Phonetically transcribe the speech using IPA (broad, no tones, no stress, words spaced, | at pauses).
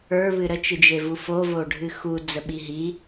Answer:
ə˞βɨ ɾət͡ʃɨd͡ʒevu fovoɖʱɨ xud͡zəɓi ɦi